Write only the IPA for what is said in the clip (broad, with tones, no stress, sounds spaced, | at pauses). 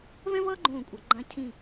v ɛ̃˥ v ʌː˥ ɡ͡ǃ õː˧˩ kʷʼ a˩˧ ɡ͡ǃ ã˧ cʰ ĩ˧˩